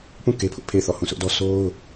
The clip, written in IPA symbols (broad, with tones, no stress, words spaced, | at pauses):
pũ˦˨ ke˦pʰʊ˦ʔpʰe˦˨ɪ̯ θɔ˦˨hũ˦˨sʊ˦ʔdɔ˦ so˦ʊ̯